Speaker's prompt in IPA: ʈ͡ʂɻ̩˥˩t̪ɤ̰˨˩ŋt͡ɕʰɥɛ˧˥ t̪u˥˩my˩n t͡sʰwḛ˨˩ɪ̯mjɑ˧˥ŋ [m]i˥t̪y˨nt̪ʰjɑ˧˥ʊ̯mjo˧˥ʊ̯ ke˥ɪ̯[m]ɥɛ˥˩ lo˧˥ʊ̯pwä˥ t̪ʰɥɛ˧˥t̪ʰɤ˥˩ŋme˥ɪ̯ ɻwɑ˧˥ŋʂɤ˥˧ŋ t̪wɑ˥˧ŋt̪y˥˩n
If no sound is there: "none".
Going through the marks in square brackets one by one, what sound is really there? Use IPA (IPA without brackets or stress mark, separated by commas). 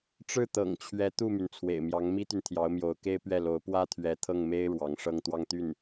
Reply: m, p